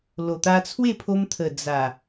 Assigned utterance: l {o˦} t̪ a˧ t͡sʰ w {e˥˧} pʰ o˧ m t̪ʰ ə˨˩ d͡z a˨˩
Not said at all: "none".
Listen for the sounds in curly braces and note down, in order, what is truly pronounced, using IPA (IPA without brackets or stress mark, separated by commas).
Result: o˨˩, e˥˧